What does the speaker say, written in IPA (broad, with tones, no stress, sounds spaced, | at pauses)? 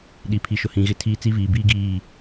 ɗ i˨ pʰ i˨ ʃ ʊ˨ h ĩ˨ ɣ ɪ˦ tʰ iː˦ t͡s i˦ v iː˨ b iː˦ ɡ iː˦˨